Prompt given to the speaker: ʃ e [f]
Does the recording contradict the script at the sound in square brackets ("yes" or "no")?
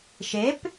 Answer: yes